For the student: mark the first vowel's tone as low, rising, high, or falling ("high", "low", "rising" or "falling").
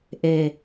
low